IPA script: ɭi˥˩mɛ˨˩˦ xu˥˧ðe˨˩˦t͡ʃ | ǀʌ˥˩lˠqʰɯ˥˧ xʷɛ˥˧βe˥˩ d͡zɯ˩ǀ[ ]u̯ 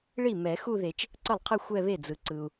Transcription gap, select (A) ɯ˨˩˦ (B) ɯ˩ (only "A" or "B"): B